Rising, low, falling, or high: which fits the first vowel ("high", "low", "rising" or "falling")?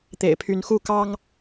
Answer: low